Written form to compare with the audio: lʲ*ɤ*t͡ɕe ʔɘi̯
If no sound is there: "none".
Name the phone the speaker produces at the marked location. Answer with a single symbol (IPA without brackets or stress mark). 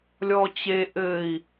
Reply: ɔ